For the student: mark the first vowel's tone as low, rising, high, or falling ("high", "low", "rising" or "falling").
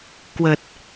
low